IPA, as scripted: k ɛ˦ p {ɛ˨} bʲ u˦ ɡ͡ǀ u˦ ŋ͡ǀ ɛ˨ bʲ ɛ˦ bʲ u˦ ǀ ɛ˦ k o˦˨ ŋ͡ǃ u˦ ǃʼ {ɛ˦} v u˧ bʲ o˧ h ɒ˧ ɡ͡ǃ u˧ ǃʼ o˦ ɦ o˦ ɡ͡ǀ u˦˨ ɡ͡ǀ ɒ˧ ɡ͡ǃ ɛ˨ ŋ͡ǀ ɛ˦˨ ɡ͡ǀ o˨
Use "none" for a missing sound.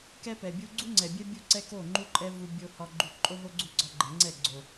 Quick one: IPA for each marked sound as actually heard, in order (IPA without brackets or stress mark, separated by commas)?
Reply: ɛ˨, ɛ˦